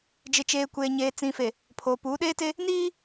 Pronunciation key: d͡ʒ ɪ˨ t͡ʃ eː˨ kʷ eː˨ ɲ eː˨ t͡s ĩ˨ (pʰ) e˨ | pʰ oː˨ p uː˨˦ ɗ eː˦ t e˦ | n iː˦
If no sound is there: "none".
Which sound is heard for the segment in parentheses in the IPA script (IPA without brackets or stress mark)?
f